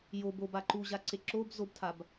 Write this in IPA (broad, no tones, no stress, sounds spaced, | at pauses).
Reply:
j o b o b a ǃ u ʑ a ǀ e ǁ o b z o b tʰ a b